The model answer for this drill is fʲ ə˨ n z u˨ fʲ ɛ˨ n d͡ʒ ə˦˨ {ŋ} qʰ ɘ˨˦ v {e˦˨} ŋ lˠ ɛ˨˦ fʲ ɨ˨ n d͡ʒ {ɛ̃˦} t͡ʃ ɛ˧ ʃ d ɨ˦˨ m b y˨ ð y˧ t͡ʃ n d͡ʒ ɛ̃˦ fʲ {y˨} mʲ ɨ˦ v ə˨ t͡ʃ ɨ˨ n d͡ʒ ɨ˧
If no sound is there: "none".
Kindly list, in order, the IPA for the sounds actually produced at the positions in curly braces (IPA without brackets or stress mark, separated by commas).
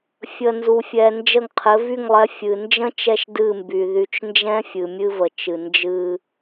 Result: ŋ, y˦˨, ə̃˦, ɨ˨